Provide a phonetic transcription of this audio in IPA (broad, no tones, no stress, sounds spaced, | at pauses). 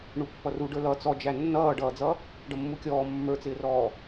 ɳ u pː ʌ r u ɖ ə˞ l ʌ t͡s ɔ d͡ʒ æ nː ʌː ɖ ʌː d͡z ʌ | ɖ ʌ mː u kʲ ɔː mː ə˞ t͡s ɪː r ɔː